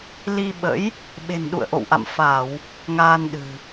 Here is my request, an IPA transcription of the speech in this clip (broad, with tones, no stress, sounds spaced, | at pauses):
l i˧ ɓ ə̰˧˥ j | ɓ e̤˨˩ n ɗ ṵ˧˨ ə̯ ʔ o̰˧˨ w ʔ a̰˧˨ m f a˧˩˨ w | ŋ aː˧ n ɗ ɨ̤˨˩